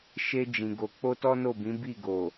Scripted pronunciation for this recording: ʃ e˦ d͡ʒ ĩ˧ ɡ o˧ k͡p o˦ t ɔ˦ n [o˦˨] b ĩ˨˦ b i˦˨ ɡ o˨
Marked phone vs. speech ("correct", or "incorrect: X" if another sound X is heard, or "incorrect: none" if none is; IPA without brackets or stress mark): correct